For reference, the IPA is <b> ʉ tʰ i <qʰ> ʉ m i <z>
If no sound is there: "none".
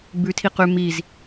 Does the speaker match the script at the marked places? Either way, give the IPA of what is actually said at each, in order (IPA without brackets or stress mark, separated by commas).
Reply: b, q, z